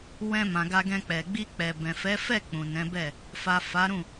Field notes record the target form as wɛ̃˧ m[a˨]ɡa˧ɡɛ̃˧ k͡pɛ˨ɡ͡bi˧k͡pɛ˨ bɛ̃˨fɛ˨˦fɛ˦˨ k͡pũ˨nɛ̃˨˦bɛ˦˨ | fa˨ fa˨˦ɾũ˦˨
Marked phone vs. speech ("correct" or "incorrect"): incorrect